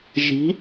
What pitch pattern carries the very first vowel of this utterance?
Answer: rising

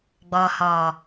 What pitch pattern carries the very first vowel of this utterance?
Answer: low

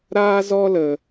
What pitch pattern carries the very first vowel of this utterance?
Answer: high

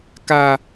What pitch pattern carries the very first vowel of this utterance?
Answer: low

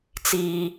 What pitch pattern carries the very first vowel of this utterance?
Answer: low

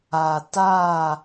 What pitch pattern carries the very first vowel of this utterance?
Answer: low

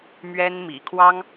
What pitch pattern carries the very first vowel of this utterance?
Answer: high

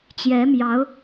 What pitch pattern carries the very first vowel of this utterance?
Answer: rising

